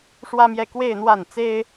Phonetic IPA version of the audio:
ʂ w ä˥ m j ɛ˥˧ k w e˥˧ ɪ̯ n̪ w a˥˩ n t͡s e˥ ɪ̯

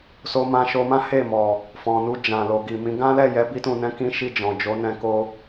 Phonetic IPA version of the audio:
s o˧ m ã˧ ʃ o˧ m ã˦ h e˦˨ m ɔ˨ | f ɔ̃˨ n u˧ d͡ʒ ã˨ l o˨ ɡ i˨ m ĩ˨˦ ɡ ã˦ l ɛ˦˨ j ɛ˨˦ b i˧ t ũ˨ n ɛ̃˨˦ k ĩ˦ ʃ i˦˨ d͡ʒ ɔ̃˨ d͡ʒ o˨˦ n ɛ̃˧ k o˧

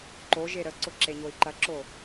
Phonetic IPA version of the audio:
ǃ o ʒ e ɾ ə ǀ ʊ ǁ e ɲ o i̯ ǃ ɐ ǁ o

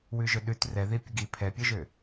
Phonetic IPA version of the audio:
w ʉ ʒ ɵ ɗ ʉ t r ɛ ð i pʲ ə ɡ i pʰ ɛ pʲ ɵ ʒ ø

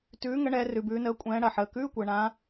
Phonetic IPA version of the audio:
t ʉː˨˦ ŋ ə˨˦ ɳ ɛː˨˦ r ʉ˨ b ʉː˨˦ n əː˨˦ kʷʼ ɛ̃ː˨˦ ɽ ɐ˨ ħ əː˨ k ʉː˧˥˧ kʷ əː˨ ɳ ã˨˦

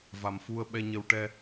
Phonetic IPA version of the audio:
v a˨˩ m f u˧ ə̯ ɓ ɛ˧ ɲ ə˧ w ʈ ɛ˧

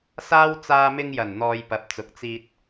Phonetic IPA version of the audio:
s aː˥ w t͡s aː˧ m ɪ˧ ŋ j ɐ˨˩ n n̪ ɔː˨ j p ɐ˨ p̚ t͡s ʊ˨˥ k̚ t͡s iː˧ t̚

